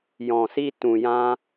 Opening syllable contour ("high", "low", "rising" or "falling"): low